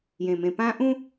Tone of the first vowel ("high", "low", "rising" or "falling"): low